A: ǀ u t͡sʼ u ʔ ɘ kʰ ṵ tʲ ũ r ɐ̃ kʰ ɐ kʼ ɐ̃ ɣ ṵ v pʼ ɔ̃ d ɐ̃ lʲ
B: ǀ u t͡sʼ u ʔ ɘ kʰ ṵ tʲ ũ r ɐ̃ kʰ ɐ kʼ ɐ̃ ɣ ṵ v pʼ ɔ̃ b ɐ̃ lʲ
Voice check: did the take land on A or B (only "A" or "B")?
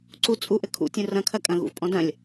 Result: A